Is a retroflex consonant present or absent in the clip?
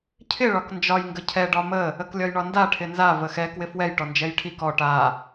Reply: present